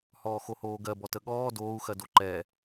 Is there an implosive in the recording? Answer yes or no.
yes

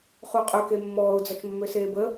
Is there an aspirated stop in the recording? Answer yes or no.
no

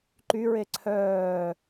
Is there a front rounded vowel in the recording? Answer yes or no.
yes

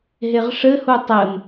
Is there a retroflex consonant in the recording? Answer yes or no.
yes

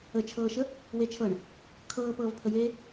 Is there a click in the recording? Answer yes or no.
no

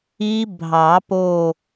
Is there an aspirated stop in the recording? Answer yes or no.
no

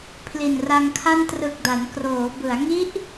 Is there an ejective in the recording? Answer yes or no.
no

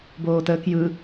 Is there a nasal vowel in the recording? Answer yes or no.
no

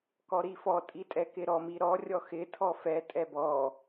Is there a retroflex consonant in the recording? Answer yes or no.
no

